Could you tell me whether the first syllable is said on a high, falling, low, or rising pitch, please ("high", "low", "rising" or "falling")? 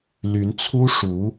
rising